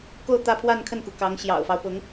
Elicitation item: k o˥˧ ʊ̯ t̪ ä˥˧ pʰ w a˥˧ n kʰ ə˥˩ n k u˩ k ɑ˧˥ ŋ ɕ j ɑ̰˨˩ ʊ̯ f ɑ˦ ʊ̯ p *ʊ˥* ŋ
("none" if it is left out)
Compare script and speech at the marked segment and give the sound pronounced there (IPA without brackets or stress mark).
ʊ˧˥